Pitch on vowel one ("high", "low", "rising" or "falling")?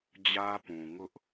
high